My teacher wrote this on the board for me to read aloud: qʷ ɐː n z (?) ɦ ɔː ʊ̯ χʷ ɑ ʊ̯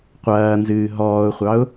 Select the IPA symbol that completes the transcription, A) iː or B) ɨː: B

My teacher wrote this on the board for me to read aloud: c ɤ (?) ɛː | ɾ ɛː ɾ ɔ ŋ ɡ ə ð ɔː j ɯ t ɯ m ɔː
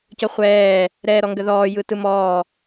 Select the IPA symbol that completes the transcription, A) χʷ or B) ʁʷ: A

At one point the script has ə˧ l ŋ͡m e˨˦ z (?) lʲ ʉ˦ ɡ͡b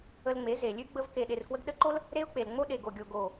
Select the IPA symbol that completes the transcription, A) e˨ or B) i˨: A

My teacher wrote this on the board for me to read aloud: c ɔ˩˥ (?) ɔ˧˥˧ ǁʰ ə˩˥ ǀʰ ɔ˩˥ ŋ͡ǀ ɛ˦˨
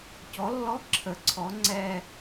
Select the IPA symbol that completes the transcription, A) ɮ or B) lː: B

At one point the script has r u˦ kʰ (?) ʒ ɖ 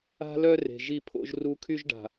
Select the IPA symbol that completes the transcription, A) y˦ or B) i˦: A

